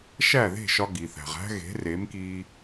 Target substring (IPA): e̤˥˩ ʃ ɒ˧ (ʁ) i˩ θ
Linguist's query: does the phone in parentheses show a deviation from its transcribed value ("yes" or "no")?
yes